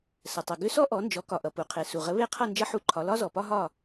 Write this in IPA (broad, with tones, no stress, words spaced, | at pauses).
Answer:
sə˩tˤʌ˩ ɡʏ˥ sɔ˥ʔɔ˩˥nd͡ʒɔ˩˥ kɒ˩ʔʌ˩ pu˩qʰe˩ su˩ʁə˩˥ βe˥˩qʰʌ˥˩ nd͡ʒʌ˥ħu˥˩ǃʰɒ˩˥ lɒ˥zɔ˩pɒ˥ ɦɒ˥˩